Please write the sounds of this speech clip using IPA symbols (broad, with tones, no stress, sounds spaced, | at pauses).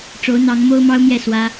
ʈ͡ʂ o˧˥ ʊ̯ n̪ ɑ˧˥ ŋ m o˥ ʊ̯ m ɑ˥ ʊ̯ m j ɛ˥˩ s w ä˥